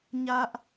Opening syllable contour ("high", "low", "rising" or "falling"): high